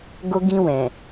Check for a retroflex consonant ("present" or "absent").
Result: absent